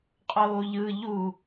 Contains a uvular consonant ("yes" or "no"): yes